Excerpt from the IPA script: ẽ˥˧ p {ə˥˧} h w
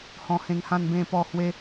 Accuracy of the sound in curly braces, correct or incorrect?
incorrect